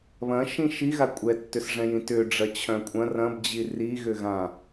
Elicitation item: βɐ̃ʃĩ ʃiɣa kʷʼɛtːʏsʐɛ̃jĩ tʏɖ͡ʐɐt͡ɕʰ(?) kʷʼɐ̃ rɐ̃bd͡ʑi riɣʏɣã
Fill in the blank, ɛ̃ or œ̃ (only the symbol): œ̃